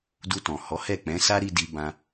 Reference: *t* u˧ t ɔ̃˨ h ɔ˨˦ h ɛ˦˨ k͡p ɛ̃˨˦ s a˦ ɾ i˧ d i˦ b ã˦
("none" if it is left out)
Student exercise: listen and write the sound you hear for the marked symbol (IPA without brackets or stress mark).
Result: d